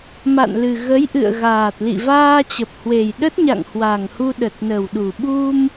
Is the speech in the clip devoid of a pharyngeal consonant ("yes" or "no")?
yes